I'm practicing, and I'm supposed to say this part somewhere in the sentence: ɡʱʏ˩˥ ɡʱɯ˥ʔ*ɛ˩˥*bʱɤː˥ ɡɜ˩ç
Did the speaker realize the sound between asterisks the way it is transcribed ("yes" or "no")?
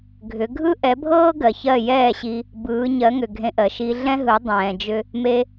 yes